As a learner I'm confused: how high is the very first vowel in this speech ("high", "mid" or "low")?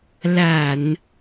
low